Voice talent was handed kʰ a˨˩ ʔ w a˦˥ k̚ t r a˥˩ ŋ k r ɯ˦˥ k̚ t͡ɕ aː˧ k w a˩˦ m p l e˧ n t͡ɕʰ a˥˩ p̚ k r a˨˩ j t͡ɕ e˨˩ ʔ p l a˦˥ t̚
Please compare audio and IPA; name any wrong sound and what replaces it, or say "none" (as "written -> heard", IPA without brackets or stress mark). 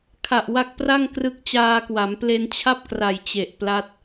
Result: t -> p